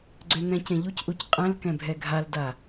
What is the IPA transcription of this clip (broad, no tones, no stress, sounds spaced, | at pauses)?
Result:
ɡ͡ǀ ø n̪ ɛ̃ c ẽ ʎ u c ʔ u c qʼ ɛ̃ l k ɛ̃ bʱ ɛ ɡʱ a l d a